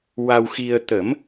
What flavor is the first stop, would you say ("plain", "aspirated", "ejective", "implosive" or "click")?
plain